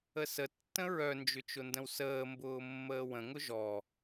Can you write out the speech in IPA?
əsətːə̃ ɹœnd͡ʒʏ t͡ʃʊndə̃wsəːmbʊː mːəːwə̃ŋʊ ʒɔ

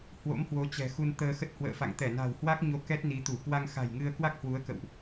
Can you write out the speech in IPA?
hwo̰˧˥mhwo˨˦t͡ɕɛ̤˨˩ xu˧nt̪əː˧xə˦˥t̚ hwə̰ː˧˨fa̰˧˨ŋ t̪ɛ˧˩na̤˨˩whwa˦˥k̚ɲo˨˦ kɛ˦˥t̚ni˨˦t̪u˧˩ kwa˧ŋxa̤˨˩jŋɨ˧ə̯ kwa˦˥k̚hwu˨˦ə̯kə̰˧˨wʔ

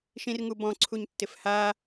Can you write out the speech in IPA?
ʃĩrŋubɔ̃ǀʰuɲ tːɪfha

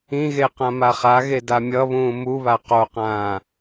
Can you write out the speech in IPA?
ĩɣe qãmaχaɣe damʲʌβũː muβa qoqãː

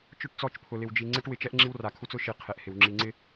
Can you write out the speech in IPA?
t͡ʃʊ˦˨ʈt͡sɔ˦˨t͡ʃpʰʊ˨ lɪ˨wd͡ʒi˨ ŋ͡ǀe˦ʈwɪ˨t͡ʃɛ˦ʔ ŋ͡ǁi˦wra˨kʰu˦t͡s ʊ˦ʃi˨ qʰe˨ʔhɪ˨w ŋ͡ǁi˨ŋ͡ǀɪ˦

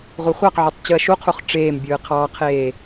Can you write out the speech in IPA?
ʁʷɯχʷɑqʕotˤ t͡ɕɯɐ̯ʃuqʰuχ ʈ͡ʂeːmbʲɯː qʰɑqʰeː

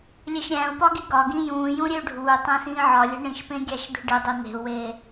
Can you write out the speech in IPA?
lʲeʃɾʲæ̃u̯pɒ ɡiɡɒɡĩ jũːjũ ɾʲeu̯ɖʱuːtˤæ̃ sĩːʕɒlʲe̤ ɳĩʃpẽ ɡʲæʃd̪e̤ɖidˤe n̪e̤u̯weː

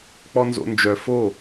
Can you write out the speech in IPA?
k͡pɔnzo̰nd͡ʒœ fo

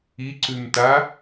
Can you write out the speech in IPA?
iǀʉmta

